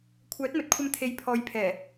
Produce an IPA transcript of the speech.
kʷʰ œː˨˥ t̚ m ɵ˨˥ t̚ kʷʰ ɐ˧ m t̪ʰ e˨ j pʰ ɔː˨˧ j pʰ ɛː˨˩

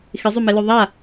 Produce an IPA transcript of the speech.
x ɪ zˤ œ m ɛ l œ ðˤ a

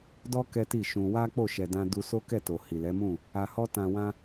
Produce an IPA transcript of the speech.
d ɔ˦ k ɛ˦ t i˦˨ ʃ ũ˧ w a˦ k͡p o˦˨ ʃ ɛ˨ d ã˧ d u˧ s o˦ k ɛ˦˨ t o˨ h i˨ l ɛ˨˦ m ũ˦˨ | a˨ h ɔ˧ t ã˨ w ã˧

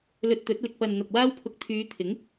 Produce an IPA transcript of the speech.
l ɵ˧ t̚ t̪ ɵ˨˥ t̚ l ɪ˨ k̚ p ɐ˨ n n̪ ɐ˨ p̚ w aː˥ w pʰ ʊ˧ k̚ t̪ʰ yː˨˧ t̪ʰ ɪ˨˥ ŋ

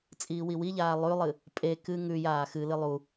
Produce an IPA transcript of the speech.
t͡sʼ iː w i w i ʎ aː lˠ ʉ lˠ ɨ | pʼ e k ɨ ŋ ʉ j aː x ɨ l ɨ lˠ u

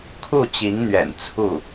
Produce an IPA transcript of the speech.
kʰ u˥˩ t͡ɕ i˧˥ ŋ n̪ ɥ ɛ̰˨˩ n t͡sʰ u˥˩

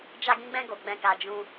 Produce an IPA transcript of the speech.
d͡ʒ a˧ ɡ ĩ˧ ɡ͡b ɛ̃˧ ɡ o˨ ɡ͡b ɛ̃˨ k a˨ d͡ʒ ũ˧

